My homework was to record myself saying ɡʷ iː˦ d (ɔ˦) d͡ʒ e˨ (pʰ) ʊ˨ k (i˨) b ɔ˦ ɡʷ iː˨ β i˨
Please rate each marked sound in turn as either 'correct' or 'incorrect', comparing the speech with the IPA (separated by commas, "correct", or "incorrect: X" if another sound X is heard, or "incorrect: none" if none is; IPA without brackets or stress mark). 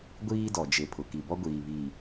incorrect: ɔ˨, correct, correct